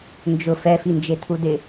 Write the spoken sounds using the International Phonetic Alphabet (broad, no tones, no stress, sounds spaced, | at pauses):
n d͡ʒ ʊ f ɛ f i n d͡ʒ e tʰ u d ɪ